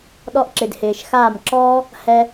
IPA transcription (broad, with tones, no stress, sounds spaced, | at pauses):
ɗ ɔ˧ ʔ ǁ ɪ˨ d h ɪː˨ ʃ x aː˦˨ m ǁ ɔː˦ | h ɛ˦